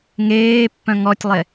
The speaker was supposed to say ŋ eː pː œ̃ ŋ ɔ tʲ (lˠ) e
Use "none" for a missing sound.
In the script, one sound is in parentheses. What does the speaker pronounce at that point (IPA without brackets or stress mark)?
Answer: lˠ